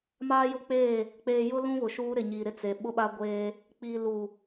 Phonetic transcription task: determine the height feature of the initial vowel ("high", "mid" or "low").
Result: low